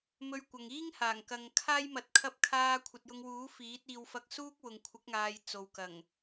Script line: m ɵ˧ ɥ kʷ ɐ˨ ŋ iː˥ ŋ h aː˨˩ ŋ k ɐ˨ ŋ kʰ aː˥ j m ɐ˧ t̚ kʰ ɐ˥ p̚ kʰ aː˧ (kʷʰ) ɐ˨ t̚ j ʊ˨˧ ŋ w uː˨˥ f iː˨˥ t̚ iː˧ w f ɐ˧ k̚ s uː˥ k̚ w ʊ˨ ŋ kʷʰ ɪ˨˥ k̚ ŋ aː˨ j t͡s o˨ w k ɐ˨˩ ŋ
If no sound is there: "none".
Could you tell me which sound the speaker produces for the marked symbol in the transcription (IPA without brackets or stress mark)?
kʷʰ